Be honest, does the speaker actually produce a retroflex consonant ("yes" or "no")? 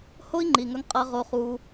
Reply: no